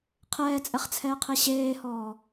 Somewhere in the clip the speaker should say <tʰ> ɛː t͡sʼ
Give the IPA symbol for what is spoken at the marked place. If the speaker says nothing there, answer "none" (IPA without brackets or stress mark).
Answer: qʰ